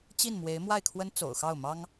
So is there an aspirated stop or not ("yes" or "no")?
yes